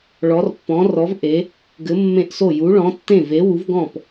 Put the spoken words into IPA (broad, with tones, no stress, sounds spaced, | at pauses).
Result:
ɭ ɔ˨˥ r pː ɔ̃˨˥ r ɔ˨˥ v ʔ e˨˥ | ɡ ɘ˨˥ mː ẽ˥˩ ʔ s o˥˩ j u˨˥ ɭ ɔ̃˨˥ tː ẽ˥˩ v e˨˥ w u˨˥ v ɡ ɔ̃˥˩ p